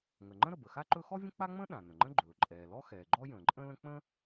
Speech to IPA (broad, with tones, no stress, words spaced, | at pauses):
ŋə˩ŋ͡ǃə̃˥ɾə˩ bə˩xa˥ǃɵ˥ xɔ˥vʲə̃˥k͡pa˥ŋ͡mə̃ː˥ ɗã˩ nə̃˩ŋ͡ǃə̃˥ɡ͡ǃɵː˩ ǃʼɛː˩lɔ˥ xɛː˩ɡ͡ǃɔ˥ jə̃ː˩ǃʼə̃˥lə̃˥ k͡pə̃ː˥